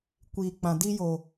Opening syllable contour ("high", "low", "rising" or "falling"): low